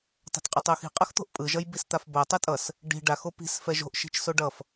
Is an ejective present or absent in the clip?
present